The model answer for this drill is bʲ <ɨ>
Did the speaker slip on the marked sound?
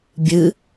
no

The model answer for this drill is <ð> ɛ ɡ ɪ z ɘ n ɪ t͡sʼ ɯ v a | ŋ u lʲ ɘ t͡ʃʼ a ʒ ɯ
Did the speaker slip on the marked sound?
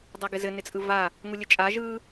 yes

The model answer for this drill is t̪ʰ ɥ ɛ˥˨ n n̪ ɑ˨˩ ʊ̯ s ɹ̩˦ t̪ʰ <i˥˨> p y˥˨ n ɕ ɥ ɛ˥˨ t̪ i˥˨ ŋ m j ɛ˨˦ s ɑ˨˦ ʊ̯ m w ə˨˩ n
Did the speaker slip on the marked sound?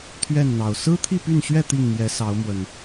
no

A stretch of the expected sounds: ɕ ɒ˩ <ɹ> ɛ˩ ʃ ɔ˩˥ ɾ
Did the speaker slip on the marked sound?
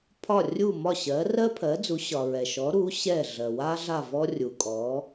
no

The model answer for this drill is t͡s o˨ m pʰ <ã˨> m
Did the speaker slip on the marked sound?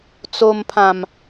no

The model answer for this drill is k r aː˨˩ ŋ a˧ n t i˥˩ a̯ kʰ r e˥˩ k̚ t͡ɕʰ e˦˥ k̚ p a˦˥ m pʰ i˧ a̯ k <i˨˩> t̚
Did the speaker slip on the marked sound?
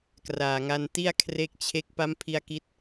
yes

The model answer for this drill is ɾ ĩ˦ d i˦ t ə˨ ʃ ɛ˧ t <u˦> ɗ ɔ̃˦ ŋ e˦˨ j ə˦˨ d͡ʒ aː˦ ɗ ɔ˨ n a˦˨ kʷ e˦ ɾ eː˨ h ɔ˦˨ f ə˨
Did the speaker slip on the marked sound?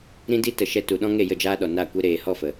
yes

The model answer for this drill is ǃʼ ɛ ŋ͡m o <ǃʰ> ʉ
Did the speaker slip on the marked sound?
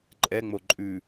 yes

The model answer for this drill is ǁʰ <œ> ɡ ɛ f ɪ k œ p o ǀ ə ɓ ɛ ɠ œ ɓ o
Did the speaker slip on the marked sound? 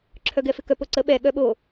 no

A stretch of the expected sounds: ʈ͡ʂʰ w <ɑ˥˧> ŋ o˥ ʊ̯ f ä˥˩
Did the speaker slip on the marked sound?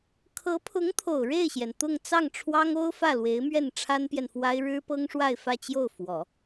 yes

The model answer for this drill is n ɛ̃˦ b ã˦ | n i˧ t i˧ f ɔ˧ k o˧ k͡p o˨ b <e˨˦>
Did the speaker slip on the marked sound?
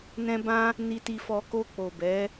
yes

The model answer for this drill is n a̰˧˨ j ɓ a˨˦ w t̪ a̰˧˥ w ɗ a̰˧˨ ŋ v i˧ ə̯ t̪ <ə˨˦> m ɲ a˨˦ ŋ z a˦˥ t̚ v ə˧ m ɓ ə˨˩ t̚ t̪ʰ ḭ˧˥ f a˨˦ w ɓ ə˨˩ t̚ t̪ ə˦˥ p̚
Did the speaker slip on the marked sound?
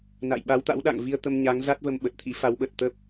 yes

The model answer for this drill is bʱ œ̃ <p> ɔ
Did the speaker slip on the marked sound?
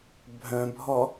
yes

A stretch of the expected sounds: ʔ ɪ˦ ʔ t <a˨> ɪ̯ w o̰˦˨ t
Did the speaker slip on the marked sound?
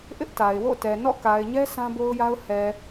no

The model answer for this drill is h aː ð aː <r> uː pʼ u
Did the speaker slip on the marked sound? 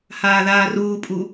no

